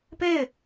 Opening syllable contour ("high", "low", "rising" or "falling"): falling